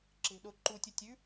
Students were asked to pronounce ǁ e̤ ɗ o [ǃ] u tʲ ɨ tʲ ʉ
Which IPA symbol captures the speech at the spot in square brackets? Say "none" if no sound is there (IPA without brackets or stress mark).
ǃ